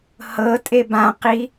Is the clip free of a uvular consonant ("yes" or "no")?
no